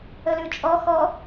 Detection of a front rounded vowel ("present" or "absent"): absent